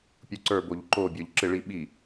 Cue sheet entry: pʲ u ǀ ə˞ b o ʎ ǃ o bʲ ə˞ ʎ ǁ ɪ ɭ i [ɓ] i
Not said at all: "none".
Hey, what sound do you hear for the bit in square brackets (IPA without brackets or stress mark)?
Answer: ɓ